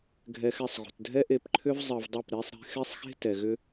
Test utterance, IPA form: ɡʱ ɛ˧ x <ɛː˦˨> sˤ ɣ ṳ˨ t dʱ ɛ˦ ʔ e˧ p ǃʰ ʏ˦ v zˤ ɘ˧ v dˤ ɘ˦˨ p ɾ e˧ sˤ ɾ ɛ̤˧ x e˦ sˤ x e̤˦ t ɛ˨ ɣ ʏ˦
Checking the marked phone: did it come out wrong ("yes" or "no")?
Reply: yes